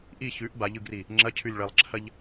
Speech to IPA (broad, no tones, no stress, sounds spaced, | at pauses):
ʔ i ç ʉ ʔ b a ʎ ɯ ɡ r i | ŋ͡ǁ ɐ cʰ ʉ lʲ ɭ ɐ lˠ ǁʰ ɐ ʎ